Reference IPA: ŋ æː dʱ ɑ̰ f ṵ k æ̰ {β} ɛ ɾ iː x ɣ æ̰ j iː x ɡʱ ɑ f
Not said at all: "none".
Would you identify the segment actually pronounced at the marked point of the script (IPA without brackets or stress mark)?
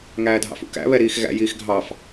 β